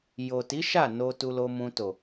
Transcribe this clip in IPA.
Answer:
j o˨ t i˨˦ ʃ a˦˨ n o˧ t u˧ l o˧ m ũ˧ t o˨

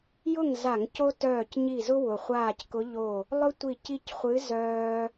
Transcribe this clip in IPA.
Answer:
j ʊ˥˨ ŋ z a˧˩˧ ŋ c o˦ t œː˧˩ c ɲ i˧˩ z ʊ˦ w ʊ˩ χʷ aː˧˩ c k ʊ˨˦ ʎ o˧˩ | lˠ ʊ˦ tʷ i˧˩ c i˦ c χʷ ɨ˨˦ z œː˦

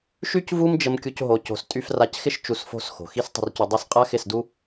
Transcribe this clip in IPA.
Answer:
ʃ y˦ c v u˦ m d͡ʒ ə˧ m kʲ u˧ c ɦ o˧ c o̤˧ s tʼ y˧ f r a˧ c x ɪ˦ ʃ t͡ʃ u˧ s f o̤˦˨ s x o̤˨ x i˧ s tˤ ə̤˨ r c u˨ dˤ o˧ s qʼ a˦ x ɪ˦˨ s d u˦

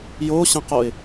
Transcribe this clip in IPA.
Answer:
j o ɕ ə̃ q o ɪ̯

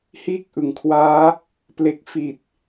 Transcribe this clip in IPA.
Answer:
h iː˦˥ k̚ ʔ ɯ˩˦ ŋ kʰ w aː˦˥ | p l e˨˩ k̚ f i˨˩ t̚

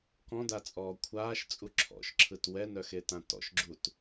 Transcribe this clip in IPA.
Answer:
k ɔ̃ d a t͡sʼ ɔː kʷʰ aː ʃ t͡sʼ u ǁʰ ɔ̰ ʃ ǁʰ ɯ t w ɛ n œ x e t ã t ɔ̰ ʃ ɡ͡ǁ u t

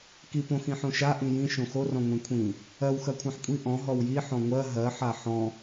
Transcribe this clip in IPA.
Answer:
k i p õ x ĩ ħ õ ʃ a ʔ ĩ j ĩ ʃ õ x o r ɔ̃ ŋʷ ĩ kʷʰ ĩ | ɜ w x ɜ kʷʰ ã ħ kʷʼ i ʔ ɔ̃ ɦ ɔ w j i ħ ɔ̃ ŋʷ ɜ ɦ ɜ ħ a ħ ɔ̃

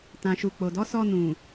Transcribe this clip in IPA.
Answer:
t ã˨ ʃ u˨ k͡p o˨ d ɔ˨˦ s ɔ˧ n ũ˨

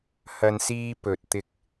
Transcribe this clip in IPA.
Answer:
h ɐ˨ n s iː˧ p ɵ˨ t̚ t̪ ɪ˧ k̚

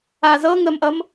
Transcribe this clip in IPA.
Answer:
a z ɤ ŋ ə m ʔ ʌ m

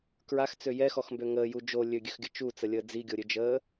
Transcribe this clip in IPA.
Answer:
k ɹ a x t͡s ø j ɛ x ɔ x m b ø ŋ əː j u d͡ʒ o lʲ ø ɡʲ ø x ɡʲ ə t͡ʃ u t͡s ə lʲ əː d͡z i ɡʲ o ɾʲ ø d͡ʒ əː

